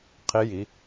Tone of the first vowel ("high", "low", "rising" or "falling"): rising